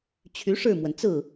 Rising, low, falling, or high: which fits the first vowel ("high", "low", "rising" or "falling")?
rising